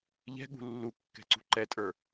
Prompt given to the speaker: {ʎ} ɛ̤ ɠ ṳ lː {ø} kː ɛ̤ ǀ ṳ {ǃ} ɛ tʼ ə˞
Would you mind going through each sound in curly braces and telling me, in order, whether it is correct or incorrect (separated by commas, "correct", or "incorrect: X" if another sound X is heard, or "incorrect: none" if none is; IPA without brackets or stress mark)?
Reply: correct, incorrect: u, correct